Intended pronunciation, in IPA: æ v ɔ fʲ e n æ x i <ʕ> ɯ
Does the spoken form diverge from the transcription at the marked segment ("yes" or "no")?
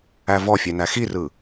yes